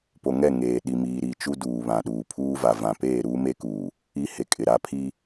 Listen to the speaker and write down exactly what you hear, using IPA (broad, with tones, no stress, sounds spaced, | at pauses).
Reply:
p o˨ ŋ ɛ˦˨ ŋ eː˨ ɗ i˨ m iː˨ ɾ i˨ t͡ʃ u˦ d uː˨ β ã˨ ɗ uː˨ pʰ uː˦ v a˨ v ã˨ p eː˦˨ ɾ uː˦ m e˦ k uː˨ | i˦ h e˨ kʼ ɪ˨ ɾ a˦ pʰ i˦